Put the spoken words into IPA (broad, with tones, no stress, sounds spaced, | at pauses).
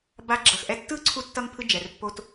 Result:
b a˧ ɡ͡ǁ ʌ˩ x ʔ ɛ˧ tː ɯ˥ ǀʰ u˥ tː ʌ˥ ŋ pʰ ɯ˥ d͡ʒ ɛ˩ r pː o˧ t